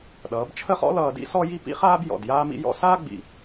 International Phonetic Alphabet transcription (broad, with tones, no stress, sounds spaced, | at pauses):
ɗ ʌː˩˧ b t͡ʃʰ ə˥˧ χ ɔ̰˥ l ʌː˧ d ḭ˥ s ɔ˥ j i˥˧ p ḭ˥ χ aː˥ b j ɔ̰˧˩ d j aː˥ m ḭ˥ j ɔ̰˥ s aː˥ ɡ͡b ḭ˧˩